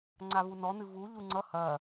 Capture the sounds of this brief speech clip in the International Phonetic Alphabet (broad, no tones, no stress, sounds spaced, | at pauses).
ŋ͡ǀ a v u n ɔ n̪ ɨ v u ʎ u ŋ͡ǀ ʌ h ɐ